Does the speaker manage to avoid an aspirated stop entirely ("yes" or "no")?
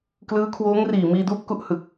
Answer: no